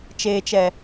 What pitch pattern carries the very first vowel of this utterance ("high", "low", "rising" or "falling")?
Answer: low